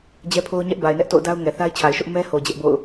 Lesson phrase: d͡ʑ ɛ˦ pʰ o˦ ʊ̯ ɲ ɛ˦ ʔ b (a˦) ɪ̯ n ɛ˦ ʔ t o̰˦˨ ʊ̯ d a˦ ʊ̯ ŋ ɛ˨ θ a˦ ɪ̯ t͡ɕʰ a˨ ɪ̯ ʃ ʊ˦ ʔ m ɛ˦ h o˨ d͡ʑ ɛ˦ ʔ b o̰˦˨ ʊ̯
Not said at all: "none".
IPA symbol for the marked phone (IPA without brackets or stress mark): a˨